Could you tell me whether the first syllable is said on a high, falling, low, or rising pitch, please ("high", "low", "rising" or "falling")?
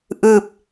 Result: falling